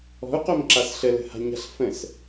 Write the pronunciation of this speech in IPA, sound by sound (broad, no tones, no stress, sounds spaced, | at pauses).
ɔ̤ u̯ q o m ǁ a s ɬ ə l ə̤ h a̤ ɲ a̤ ɬ f ə̃ s